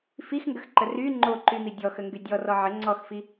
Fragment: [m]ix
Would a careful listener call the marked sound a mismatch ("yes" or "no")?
yes